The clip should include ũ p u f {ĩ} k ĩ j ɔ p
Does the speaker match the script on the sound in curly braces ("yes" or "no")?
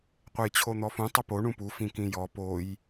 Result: yes